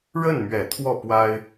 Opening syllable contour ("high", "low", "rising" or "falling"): falling